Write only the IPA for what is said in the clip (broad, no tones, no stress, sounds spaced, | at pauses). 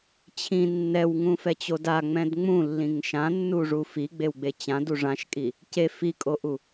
t͡ɕʰ ĩ nː ɛ w ŋ ũ f ɛ t͡ɕ o d a ŋ͡m ɛ̃ d ŋ͡m ũ lː ĩ ŋ ʃ ã nː u ʐ u f i ɡ͡b e w ɡ͡b e t͡ɕ ã d u ʐ ã ʃ kʼ i | c e f i kʼ o ʔ u